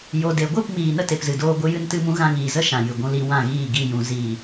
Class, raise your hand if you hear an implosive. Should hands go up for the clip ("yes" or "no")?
no